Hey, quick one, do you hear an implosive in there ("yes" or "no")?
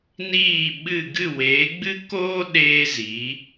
yes